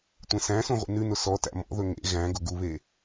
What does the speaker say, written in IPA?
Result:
tʷ ẽ s æ̃ s ũ ʁʷ ḛ n ʉ n ʊ s ɔ t æ̰ m ɔ̰ ð ɵ ŋ ḛ ɣ æ̃ ɡ ʊ ɡ u β e

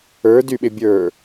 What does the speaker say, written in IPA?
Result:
ə˞ d y ɓ ɪ bʲ ə˞

